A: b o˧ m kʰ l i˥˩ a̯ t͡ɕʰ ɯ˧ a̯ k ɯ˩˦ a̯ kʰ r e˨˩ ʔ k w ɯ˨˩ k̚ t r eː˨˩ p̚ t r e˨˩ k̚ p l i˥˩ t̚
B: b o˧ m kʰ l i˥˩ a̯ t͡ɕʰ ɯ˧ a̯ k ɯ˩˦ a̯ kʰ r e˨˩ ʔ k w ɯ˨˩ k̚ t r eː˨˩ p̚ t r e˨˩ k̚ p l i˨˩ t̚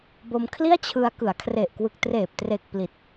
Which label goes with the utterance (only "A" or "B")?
B